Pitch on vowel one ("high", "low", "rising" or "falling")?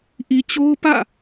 low